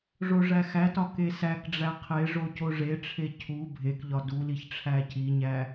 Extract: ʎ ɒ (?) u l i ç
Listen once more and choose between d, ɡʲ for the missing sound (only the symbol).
d